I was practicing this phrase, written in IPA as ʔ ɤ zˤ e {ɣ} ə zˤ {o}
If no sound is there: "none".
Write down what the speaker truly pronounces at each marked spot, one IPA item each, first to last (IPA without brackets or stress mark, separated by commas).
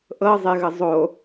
ɣ, o